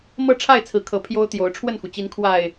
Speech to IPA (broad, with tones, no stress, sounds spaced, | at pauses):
m ɤ˥˨ ʈ͡ʂʰ a˥˨ ɪ̯ t͡sʰ ɹ̩˨˦ kʰ ɤ˨˦ pʰ j o˦ ʊ̯ t̪ j o˨˦ ʊ̯ ʈ͡ʂʰ w ə˥˨ n x u˩ t͡ɕ i˨˦ n kʰ w a˨˩ ɪ̯